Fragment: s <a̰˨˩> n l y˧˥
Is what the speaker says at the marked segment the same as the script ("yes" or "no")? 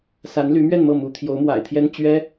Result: no